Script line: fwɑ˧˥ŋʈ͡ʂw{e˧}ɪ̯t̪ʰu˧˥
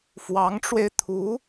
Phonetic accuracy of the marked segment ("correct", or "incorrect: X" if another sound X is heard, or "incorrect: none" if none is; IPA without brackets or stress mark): correct